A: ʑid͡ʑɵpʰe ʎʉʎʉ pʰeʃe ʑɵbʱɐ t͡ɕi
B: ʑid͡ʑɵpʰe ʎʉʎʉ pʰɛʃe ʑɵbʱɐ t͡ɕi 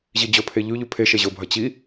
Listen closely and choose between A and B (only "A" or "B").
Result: A